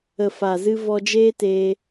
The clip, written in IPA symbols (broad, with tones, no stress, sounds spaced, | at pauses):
ə˨ f a˨ z ɨ˧ v ɔ˧ d͡ʒ eː˦ t eː˧